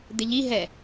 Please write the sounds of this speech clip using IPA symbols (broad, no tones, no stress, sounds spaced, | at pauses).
d̪ ɪ ʎ i ɦ ɛ